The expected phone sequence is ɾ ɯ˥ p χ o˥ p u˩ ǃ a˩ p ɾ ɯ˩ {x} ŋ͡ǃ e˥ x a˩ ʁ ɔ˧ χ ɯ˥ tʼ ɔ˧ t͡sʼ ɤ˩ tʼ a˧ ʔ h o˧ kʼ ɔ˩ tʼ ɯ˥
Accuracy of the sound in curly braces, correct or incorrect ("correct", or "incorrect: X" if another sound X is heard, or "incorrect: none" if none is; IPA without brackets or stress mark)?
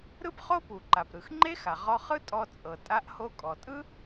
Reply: correct